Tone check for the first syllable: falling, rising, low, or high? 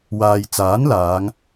low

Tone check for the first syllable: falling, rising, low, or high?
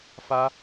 high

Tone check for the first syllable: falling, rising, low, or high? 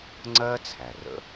high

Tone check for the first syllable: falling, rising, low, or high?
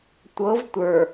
rising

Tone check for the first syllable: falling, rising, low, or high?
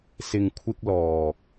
low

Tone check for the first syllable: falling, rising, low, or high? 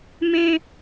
high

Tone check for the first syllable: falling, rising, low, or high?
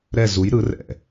falling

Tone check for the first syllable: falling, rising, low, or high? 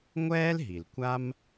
high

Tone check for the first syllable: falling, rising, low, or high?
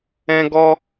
high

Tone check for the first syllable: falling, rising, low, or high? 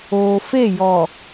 low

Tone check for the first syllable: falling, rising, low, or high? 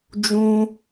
high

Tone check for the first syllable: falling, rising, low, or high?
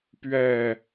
falling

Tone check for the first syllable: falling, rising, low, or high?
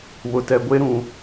low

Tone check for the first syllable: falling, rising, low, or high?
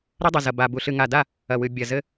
high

